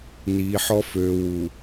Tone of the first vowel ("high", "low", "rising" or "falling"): low